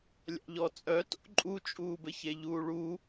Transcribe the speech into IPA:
lʲ a̰ ʎ ɔ t͡sʼ œ t o̰ ǃʼ u t͡ʃʼ uː b ɘ ç e ʎ uː ɭ u

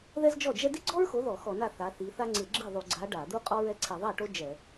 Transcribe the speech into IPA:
ð ɛ˥ z d͡ʒ ɔ˥˩ d͡ʒ ɛ˥ d i˥ ɡ͡ǀ ɔ˥ ɹ x o˨˦ ð ɔ˧˩˧ x ɔ˧˩˧ n a˥˩ θ a˨˦ θ i˨˦ θ a˥ ŋ͡ǀ ɪ˧˩˧ ɡ͡ǁ i˥˩ ðˤ u˧˩˧ ɡ͡ǀ a˨˦ ɖ a˧˩˧ d̪ u˥ qʼ ɔ˥ ɹ ɛ˥ ǀʰ i˧˩˧ ðˤ a˥˩ ʈ o˥ d͡ʒ ɛ˧˩˧

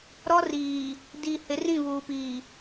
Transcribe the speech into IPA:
ɾ ɔ˦ r iː˨ | d iː˨ h ɪ˨˦ r ĩ˦˨ β uː˨ p iː˨

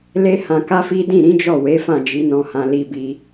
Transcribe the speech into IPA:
l e˦ h ã˧ k a˦ f i˦ d ĩ˦˨ ɾ ĩ˨˦ d͡ʒ ɔ˦˨ w e˨˦ f ã˦˨ d͡ʒ i˨˦ n ɔ̃˧ h ã˧ l i˧ b i˧

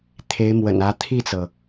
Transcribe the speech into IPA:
t̪ʰ e˧˥ ɪ̯ m w ə̰˨˩ n ä˧˥ t̪ʰ i˥˩ t͡s ɤ˩

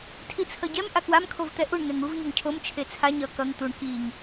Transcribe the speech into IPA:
tʰ i t͡sʰ ʌ ɟ ɛ m ʔ a k w a m kʰ o v t̪ ɛ ʔ u ɳ ŋ ɛ ŋ u v ɲ ʌ ŋ cʰ o m t͡ʃʰ e t͡sʰ a ɲ ʌ k ʌ ŋ t̪ u ɳ k i ŋ

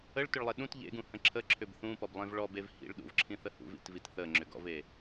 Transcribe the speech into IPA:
ə ɭ t ʏ ɭ lˠ e ɗ ũ t ʎ ḛ ɡ ũ h ə̃ ǁʰ ə ǁʰ ʏ b θ ũ p ɔ b lˠ ẽ v ɭ ɔ b e v h ḭ ɭ ɗ ṵ v ǁʰ ĩ θ ə h ṵ v ḭ t v i t θ ə ŋ͡ǁ ʏ ɡ ɔ̰ v e

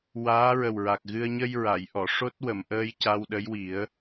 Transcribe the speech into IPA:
w aː˧˥ ɹ ə˨˩ w ɹ a˨˩ k̚ ɣ ɨ˧ ə̯ ɲ ə˧ j ɹ a˨˩˨ j ʔ ɔ˨˩˨ ʂ o˦˥ t̚ w ə˨˩˨ m ʔ əː˧ j c a˧ w ɗ ə˧˥ j w i˨˩˦ ə̯

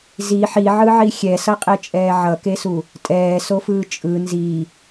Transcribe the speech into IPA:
z i ħ i ʕ ɯ ʕ i xʲ ɛ s ʌ qʼ e t͡ʃʼ ɛː ʕ ʌ k e s u | tʼ ɛː s o f ɯː t͡ʃʼ ɯ n z i

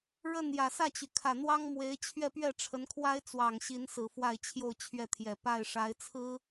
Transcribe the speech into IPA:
ɻ ə˥˩ n j ä˨˩ s ä˥˩ t͡ɕ y˩ kʰ ä˨˩ n̪ w ɑ˥ ŋ m w e˧˥ ɪ̯ t͡ɕʰ ɥ ɛ˥˧ p ɥ ɛ˥˩ ʈ͡ʂʰ ə˧˥ n kʰ w a˥ ɪ̯ t͡s w ɑ˨˩ ŋ ɕ i˧˥ n s ɹ̩˨˩ f w a˥˧ ɪ̯ t͡ɕʰ j o˥˧ ʊ̯ t͡ɕʰ ɥ ɛ˥˩ t̪ʰ j ɛ˨˩ p a˥˩ ɪ̯ ʂ a˧˥ ɪ̯ t͡sʰ ɹ̩˥

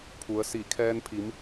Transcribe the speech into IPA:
pʰ u˩˧ ə̯ s i˧˩ kʰ ɛː˧ n pʰ i˩˧ m

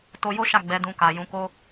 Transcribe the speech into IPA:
t o˧ j o˦ ʃ a˦˨ ɡ͡b ɛ˨˦ d ũ˧ k a˨ j ũ˨˦ k o˦

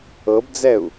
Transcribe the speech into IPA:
ɤ b d͡z ɛ u̯

